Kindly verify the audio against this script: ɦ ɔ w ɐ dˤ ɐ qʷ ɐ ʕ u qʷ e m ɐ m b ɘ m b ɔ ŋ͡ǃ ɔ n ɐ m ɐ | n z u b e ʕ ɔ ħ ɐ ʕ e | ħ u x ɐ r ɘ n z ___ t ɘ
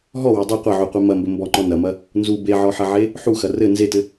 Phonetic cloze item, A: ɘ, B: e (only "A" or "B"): B